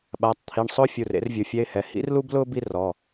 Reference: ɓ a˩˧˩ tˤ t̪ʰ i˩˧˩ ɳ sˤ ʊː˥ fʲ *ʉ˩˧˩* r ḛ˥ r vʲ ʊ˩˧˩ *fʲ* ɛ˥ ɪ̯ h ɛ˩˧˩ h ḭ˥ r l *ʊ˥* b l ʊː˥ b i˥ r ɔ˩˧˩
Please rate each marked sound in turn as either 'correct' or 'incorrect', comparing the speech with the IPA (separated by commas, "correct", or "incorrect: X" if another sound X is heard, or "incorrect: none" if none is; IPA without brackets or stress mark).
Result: incorrect: u˩˧˩, correct, incorrect: u˥